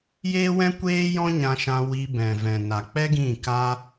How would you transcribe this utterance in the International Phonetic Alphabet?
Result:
j eː˦ w ɛ̃˦ kʷ eː˦ j ɔ̃˦ ɲ ã˧ ʃ ã˧ w i˧ b ɛ̃˨ v ɛ̃˨ n a˨ k͡p ɛ˦ ɡ ĩ˦˨ k a˦

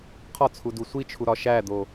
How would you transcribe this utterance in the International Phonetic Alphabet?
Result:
qʰ ɒ t͡sʰ u d u sʷ i t͡ʃʰ u ɾ ɒ ʃ æ d̪ o

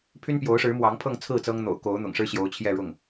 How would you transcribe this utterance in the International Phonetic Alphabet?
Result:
pʰ y˥ n p j o˧˥ ʊ̯ ʂ ɻ̩˧˥ m w ɑ˧˥ ŋ pʰ ɤ˥˧ ŋ t͡sʰ ɹ̩˥˩ t͡s ɤ˥ ŋ n̪ o̰˨˩ ʊ̯ k o˧˥ ʊ̯ n̪ ʊ̰˨˩ ŋ ʂ ɻ̩˥ ɕ j o˧˥ ʊ̯ t͡ɕʰ j ɛ˥˧ ɻ ʊ˥˩ ŋ

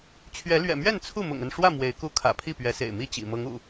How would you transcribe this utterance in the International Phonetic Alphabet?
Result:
t͡ɕʰ ɥ ɛ˨˦ l ɥ ɛ̰˨˩ m ɥ ɛ˥˨ n t͡sʰ u˥˨ m ʊ̰˨˩ ŋ ə˥˨ n ʂ w ä˥˨ m w e˨˦ ɪ̯ k u˦ kʰ ä̰˨˩ pʰ i˥˨ p ɥ ɛ˨˦ s ḛ˨˩ ɪ̯ m i˥˨ t͡ɕ ḭ˨˩ m ɤ˨˦ ŋ ṵ˨˩

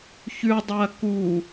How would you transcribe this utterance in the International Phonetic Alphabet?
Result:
ç ʉ dˤ ɐː k u

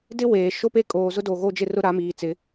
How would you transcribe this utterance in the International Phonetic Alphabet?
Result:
d ɪ˦ w eː˨ ʃ o˦ p e˦ kʼ oː˨ z ʊ˦ d o˨ ɣ o˦ d͡ʒ ɪ˦ r ʊ˦ ɾ a˨˦ m iː˨ t͡s ɪ˨˦

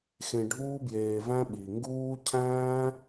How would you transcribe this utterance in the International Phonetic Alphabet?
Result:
x ẽ˧ ɖʱ uː˦ b j eː˧ v æ̃˦ ɓ i˨ ŋ ɡ uː˦ cʰ æ̃ː˦

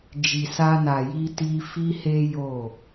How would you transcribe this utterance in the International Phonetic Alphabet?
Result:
d͡ʒ i˨ s a˧ n a˨ j i˧ t i˧ f i˦ h e˦ j o˦˨

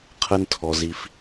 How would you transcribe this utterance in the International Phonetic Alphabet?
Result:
qʰ ə˦ n tʰ ɔ˧ z i˧ f

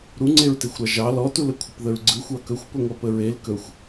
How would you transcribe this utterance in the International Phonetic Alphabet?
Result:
ɾ u ŋ͡ǀ e ɹ t e xʷ ɾ ɑ ʒ ɑ l ɔ t u l ə kʷʰ ə p ð ə ɹ ɡ͡ǀ ɯ xʷ ɑ k ɵ xʷ p ɵ ŋʷ ɑ p ə ɹ e l k ɵ xʷ

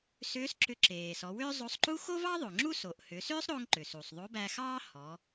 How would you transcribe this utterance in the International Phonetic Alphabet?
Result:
s ʏː˧˥ s ǁ ʏ˧ ǁ eː˩ s ɔ˩˧ w ʏː˥ zˤ o˧ sˤ ǃ u˥ x o˥ v ɑ˥ ðˤ o˩ ŋ͡ǁ u˥ s o˩ ʔ h ʏ˩˧ s ʏː˥ sˤ ɾ o˧ ŋ ǃ ʏ˩ s u˩ sˤ ðˤ o˧˥ b æ˧ x ɑː˥ h ɔ˩˧

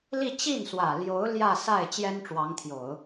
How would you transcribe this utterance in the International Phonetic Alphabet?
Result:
l i˥˧ t͡ɕ i˥˩ n s w ä˨˩ l j o˧˥ ʊ̯ l j ä˥˧ s a˥˩ ɪ̯ t͡ɕ j ɛ˥ n ʈ͡ʂ w ɑ˧˥ ŋ t̪ʰ j o˨˩˦ ʊ̯

